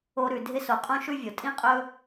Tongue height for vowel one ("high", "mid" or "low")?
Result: mid